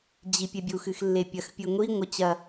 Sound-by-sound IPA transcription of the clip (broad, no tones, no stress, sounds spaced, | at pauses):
d͡ʑ i pʲ e bʲ u x ɨ x lː e pʲ ɐ x pʲ ɨ ŋʷ i ŋʷ ɐ t͡ɕ ɐ